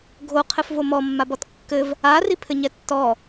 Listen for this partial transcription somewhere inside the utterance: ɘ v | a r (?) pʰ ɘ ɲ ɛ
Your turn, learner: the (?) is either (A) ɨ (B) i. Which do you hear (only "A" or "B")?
B